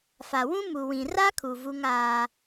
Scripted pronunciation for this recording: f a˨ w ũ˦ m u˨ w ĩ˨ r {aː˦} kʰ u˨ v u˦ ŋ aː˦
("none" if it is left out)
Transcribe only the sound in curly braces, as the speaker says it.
a˦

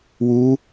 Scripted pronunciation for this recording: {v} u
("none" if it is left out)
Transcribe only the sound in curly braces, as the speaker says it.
w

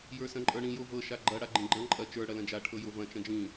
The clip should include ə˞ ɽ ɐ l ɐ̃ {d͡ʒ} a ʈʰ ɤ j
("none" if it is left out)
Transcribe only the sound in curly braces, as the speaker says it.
d͡ʒ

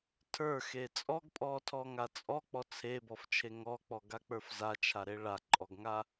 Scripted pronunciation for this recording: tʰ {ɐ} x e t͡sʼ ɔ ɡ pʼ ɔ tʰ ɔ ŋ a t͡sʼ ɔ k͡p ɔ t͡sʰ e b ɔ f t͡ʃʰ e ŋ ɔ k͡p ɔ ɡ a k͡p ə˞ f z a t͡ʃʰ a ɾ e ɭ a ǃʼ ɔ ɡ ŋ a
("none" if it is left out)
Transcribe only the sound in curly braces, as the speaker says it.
ə˞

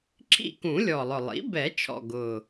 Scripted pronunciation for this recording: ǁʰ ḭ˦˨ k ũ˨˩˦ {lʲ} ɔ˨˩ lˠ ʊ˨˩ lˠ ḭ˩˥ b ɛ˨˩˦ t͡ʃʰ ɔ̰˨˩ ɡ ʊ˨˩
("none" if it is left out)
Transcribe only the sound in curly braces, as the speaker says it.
lʲ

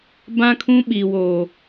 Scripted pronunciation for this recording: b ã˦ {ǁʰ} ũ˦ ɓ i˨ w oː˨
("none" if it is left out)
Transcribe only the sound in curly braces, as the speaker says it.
kʰ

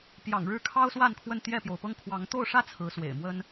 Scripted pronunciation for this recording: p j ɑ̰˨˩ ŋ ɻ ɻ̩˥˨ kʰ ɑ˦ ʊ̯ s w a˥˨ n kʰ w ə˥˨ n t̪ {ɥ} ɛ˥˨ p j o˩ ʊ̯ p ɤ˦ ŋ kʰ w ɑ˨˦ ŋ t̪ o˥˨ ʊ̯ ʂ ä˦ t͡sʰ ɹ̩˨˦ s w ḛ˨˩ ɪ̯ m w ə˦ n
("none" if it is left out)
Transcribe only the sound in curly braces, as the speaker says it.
j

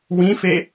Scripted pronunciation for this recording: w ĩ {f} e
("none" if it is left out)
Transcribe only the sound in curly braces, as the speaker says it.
f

